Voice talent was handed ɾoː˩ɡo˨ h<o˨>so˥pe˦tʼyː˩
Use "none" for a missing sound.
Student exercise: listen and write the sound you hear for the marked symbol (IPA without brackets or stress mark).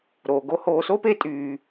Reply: oː˨